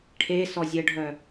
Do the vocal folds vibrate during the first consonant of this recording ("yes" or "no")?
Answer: no